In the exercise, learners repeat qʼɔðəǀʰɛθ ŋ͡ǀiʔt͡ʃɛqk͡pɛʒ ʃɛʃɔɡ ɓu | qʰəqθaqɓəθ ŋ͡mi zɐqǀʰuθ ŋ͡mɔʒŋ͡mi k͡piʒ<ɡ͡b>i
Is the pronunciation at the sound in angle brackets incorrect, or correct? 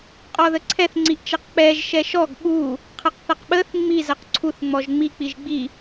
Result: correct